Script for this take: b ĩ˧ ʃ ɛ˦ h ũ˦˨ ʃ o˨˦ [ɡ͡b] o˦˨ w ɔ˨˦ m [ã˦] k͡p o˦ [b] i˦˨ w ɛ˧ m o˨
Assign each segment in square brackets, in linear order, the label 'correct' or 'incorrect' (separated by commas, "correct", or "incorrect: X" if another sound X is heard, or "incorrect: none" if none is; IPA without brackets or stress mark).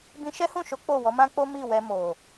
incorrect: k͡p, correct, incorrect: m